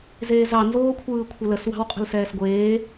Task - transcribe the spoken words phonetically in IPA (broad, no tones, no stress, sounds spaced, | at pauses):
z eː z ɑ n z oː kʷʰ ɯː kʷʰ ə l ə s w ɑ̤ w qʼ ə̤ l s ɛː s ɡʷ eː